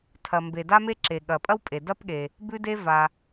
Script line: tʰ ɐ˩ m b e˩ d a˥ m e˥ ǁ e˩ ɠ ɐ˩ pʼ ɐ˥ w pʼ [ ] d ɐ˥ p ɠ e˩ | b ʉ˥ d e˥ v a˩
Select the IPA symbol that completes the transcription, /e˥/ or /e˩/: e˩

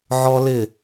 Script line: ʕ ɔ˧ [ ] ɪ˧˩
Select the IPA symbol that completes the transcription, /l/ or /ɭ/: l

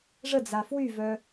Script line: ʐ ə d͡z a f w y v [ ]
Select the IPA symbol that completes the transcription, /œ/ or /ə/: œ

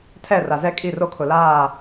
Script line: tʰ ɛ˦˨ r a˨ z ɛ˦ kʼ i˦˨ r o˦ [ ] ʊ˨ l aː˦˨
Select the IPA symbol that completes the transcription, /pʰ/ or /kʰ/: kʰ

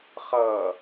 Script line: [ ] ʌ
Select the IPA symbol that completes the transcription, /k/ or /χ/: χ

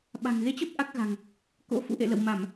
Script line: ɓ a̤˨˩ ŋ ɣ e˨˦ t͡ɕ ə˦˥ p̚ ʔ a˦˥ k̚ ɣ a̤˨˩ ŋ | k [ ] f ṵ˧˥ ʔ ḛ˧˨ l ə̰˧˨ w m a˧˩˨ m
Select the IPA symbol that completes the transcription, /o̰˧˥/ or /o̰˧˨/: o̰˧˥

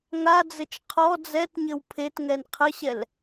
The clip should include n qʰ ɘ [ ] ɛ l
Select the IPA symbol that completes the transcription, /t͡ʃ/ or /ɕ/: ɕ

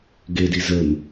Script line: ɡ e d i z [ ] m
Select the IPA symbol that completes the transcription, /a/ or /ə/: ə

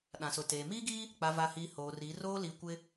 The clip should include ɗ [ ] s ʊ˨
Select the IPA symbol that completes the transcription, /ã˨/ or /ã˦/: ã˨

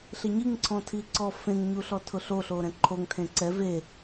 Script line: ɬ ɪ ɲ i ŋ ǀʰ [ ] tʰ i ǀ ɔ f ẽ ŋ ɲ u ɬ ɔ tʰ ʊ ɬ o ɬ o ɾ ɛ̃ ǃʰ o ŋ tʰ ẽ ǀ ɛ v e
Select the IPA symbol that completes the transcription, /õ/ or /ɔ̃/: ɔ̃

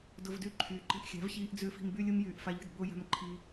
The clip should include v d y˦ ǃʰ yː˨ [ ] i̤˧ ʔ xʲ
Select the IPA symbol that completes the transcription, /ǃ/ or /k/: ǃ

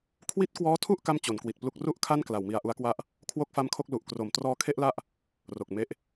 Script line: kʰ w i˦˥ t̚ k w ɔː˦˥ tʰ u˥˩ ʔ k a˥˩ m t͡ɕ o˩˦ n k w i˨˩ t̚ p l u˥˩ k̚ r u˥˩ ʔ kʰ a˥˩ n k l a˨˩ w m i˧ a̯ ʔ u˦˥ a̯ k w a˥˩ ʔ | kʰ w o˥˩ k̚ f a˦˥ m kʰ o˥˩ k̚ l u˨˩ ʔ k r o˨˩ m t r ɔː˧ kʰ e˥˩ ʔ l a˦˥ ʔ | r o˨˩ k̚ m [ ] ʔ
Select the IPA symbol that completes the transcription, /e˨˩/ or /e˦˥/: e˦˥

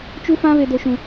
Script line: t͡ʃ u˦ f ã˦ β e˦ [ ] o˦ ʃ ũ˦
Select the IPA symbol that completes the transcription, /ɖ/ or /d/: d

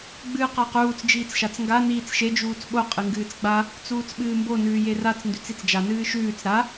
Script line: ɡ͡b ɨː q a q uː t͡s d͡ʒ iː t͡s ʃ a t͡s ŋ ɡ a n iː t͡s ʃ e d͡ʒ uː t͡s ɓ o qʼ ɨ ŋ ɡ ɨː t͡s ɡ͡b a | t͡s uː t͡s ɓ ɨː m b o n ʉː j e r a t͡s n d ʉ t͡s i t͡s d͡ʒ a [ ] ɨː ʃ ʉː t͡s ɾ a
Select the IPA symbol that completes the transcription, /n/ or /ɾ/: n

